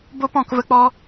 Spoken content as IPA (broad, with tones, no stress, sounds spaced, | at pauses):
b o˦ p ɔ̃˦˨ k v ə˧ k͡p ɔ˧